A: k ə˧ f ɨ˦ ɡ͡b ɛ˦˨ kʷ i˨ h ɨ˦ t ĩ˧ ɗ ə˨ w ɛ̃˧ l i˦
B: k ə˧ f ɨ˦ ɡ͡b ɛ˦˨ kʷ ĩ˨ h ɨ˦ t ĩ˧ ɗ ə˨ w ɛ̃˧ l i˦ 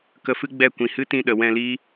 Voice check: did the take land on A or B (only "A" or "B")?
B